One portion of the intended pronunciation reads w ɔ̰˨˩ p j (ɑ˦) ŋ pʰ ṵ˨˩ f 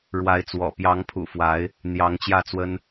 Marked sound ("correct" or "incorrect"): incorrect